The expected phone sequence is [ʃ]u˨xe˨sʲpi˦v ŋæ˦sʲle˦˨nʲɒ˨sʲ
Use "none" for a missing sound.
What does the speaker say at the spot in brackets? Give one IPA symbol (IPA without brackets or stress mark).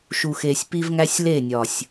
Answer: ʃ